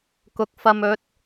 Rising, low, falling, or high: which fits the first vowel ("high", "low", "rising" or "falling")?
rising